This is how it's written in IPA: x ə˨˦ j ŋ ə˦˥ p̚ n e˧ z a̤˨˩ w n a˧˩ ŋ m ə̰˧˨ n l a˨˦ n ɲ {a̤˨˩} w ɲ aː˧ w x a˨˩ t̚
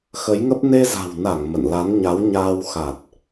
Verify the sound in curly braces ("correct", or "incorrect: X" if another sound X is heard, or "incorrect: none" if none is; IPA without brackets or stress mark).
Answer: incorrect: a˨˦